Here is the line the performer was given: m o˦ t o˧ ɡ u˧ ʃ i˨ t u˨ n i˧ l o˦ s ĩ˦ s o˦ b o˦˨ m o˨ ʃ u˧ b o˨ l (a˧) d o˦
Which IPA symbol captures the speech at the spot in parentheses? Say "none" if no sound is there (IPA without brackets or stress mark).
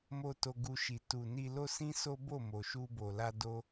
a˧